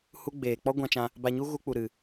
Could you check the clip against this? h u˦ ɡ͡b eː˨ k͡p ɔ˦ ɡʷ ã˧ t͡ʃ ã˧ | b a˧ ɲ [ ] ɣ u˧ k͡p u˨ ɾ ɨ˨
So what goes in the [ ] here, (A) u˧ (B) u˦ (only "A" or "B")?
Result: B